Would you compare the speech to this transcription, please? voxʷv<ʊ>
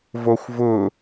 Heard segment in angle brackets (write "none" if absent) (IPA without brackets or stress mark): ʊ